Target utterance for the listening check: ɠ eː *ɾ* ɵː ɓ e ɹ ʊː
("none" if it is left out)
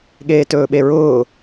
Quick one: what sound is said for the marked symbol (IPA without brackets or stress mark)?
t